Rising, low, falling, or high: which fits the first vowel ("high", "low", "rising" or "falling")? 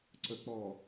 low